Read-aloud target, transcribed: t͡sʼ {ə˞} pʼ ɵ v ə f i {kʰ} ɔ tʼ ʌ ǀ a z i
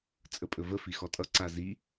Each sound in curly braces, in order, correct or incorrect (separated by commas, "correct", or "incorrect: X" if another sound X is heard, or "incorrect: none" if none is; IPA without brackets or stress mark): incorrect: ə, incorrect: x